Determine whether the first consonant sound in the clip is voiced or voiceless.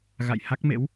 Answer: voiced